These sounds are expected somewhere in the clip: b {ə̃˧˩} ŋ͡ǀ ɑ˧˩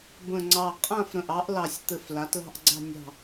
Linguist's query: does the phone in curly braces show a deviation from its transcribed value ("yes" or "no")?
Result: no